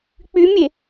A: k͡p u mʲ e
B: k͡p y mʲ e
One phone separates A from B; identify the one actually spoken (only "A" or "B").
B